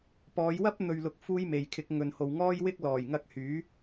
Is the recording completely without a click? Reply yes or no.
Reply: yes